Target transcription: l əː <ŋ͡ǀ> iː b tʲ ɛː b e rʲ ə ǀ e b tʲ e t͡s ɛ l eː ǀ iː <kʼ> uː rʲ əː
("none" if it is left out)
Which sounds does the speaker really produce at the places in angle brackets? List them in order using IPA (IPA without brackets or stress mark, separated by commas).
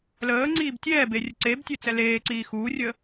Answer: ŋ͡ǀ, x